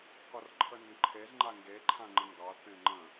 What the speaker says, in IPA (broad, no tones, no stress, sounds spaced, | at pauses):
k ɒ r ǃʰ ə n d ə̃ ǃʰ e z ŋ͡ǃ a ŋ ɡ e ǃʰ ã ŋ͡ǃ ə̃ ŋ ɡ ɑ θ ẽ ŋ͡ǃ ə̃